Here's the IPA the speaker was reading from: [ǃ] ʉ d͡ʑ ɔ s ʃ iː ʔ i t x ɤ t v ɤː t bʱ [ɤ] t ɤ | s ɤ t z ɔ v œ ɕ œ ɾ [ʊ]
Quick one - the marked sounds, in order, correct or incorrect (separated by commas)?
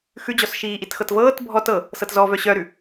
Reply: incorrect, incorrect, incorrect